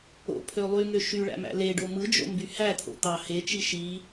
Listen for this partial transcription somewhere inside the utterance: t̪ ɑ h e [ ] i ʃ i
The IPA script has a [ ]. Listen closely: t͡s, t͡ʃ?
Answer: t͡ʃ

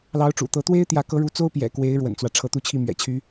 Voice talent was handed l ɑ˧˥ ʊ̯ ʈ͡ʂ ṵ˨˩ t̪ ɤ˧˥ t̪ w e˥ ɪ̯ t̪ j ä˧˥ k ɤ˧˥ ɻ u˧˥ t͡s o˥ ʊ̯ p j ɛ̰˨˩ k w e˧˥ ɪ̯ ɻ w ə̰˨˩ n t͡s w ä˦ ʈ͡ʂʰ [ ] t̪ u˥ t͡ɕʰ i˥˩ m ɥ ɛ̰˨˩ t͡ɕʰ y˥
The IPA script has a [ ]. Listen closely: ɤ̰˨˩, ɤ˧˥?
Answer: ɤ˧˥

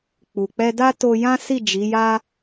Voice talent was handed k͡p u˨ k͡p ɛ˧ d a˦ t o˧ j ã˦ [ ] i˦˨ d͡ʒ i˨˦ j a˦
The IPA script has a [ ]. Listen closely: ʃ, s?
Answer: s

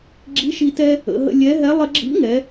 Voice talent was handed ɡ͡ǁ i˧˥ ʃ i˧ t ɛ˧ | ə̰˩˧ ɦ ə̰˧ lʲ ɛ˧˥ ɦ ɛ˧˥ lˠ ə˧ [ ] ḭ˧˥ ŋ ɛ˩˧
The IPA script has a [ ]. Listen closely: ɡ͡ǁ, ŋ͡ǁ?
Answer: ɡ͡ǁ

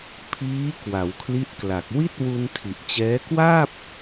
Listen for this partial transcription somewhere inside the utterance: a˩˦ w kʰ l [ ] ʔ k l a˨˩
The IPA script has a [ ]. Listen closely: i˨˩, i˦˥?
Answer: i˦˥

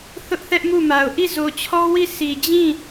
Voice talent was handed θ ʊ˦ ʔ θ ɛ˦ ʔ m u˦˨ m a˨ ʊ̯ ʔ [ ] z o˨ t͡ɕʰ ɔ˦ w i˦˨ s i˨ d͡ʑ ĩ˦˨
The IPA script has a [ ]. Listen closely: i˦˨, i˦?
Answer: i˦˨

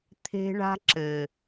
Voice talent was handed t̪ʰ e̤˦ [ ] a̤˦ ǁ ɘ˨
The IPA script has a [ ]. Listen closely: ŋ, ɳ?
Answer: ɳ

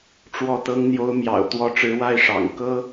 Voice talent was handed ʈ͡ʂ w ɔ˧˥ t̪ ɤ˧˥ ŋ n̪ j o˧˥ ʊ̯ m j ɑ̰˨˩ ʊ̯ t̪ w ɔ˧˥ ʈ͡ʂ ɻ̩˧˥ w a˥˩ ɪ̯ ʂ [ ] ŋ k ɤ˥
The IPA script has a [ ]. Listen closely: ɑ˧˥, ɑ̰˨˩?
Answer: ɑ̰˨˩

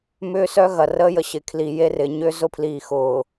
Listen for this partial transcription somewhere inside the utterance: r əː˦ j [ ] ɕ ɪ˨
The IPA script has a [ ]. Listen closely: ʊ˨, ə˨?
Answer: ə˨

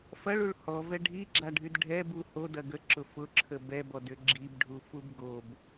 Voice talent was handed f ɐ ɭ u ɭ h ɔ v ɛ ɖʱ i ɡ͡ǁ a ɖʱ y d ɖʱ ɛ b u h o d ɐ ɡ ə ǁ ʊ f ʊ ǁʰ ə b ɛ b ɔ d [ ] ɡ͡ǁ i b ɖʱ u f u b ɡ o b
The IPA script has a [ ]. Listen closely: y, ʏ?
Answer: ʏ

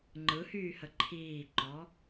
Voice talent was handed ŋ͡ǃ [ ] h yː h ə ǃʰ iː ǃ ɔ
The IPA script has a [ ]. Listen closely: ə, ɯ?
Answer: ɯ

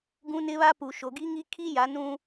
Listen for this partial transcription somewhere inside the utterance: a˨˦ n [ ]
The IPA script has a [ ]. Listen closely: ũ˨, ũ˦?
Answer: ũ˦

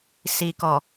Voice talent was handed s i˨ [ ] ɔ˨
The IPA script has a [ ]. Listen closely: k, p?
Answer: k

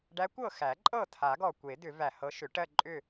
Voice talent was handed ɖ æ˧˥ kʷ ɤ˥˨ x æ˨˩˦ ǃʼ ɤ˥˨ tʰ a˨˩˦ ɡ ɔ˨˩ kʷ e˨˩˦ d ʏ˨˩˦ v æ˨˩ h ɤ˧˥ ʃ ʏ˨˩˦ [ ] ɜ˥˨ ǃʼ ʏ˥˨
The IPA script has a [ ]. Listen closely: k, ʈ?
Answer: ʈ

